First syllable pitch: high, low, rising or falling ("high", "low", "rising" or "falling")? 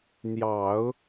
low